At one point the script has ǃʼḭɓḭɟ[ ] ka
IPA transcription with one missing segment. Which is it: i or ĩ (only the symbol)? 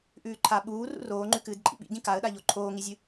ĩ